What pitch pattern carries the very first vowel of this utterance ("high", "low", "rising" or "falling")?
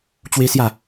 high